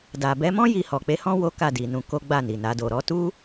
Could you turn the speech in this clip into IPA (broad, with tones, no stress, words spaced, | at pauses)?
da˨bɛ˨˦mɔ̃˦ ji˧hɔ˨k͡pe˨˦hɔ̃˦ wo˦ka˦˨di˨nũ˨˦ ko˦ɡ͡ba˦˨ni˨na˨˦ do˧ ɾɔ˧tu˦